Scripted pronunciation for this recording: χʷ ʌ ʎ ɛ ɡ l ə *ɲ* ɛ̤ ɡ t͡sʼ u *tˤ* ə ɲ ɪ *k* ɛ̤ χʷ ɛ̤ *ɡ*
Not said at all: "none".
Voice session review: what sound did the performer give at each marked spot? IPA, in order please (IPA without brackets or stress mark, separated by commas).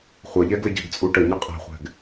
ɟ, ʈ, qʼ, ɡ